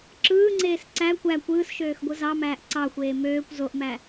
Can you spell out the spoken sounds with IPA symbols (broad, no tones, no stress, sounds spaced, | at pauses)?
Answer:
ǁ ɯː ŋ͡ǀ eː s ǀ æ kʷ æ kʷ ɯː s ʃ øː x ɡʷ ɯ z ɑ m æː ʔ ǀ ɑ xʷ eː m øː kʷ z o ʔ m æ